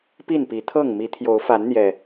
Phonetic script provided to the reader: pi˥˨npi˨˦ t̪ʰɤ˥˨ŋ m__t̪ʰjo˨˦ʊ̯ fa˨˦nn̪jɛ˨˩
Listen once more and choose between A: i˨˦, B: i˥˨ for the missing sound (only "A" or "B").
A